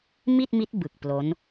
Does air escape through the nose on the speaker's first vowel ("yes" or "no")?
no